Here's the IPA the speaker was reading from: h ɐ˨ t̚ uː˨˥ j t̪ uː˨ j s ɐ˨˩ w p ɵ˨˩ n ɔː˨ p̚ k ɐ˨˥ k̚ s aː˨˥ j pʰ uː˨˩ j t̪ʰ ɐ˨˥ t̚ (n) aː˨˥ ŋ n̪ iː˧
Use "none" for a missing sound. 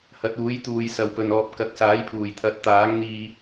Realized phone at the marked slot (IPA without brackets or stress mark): t̪